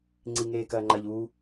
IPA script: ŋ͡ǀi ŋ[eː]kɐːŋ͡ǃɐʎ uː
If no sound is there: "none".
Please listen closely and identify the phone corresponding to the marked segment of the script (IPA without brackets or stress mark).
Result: eː